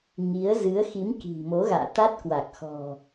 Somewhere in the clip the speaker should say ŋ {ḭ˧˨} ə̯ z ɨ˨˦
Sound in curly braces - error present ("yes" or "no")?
yes